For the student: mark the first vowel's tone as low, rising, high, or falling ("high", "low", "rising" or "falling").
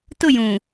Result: falling